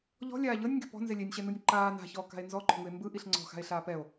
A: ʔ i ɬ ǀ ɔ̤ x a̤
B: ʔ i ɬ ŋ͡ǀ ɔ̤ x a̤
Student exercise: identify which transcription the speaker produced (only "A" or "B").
B